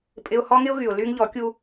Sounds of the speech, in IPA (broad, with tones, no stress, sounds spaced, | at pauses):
pʼ ɪ˦ ʊ̯ h ɔ˦ ŋ ɪ˦ ʊ̯ ɣ y˨ ʊ̯ l y˦ ŋ ʎ ɔ˨˦ kʲ u˦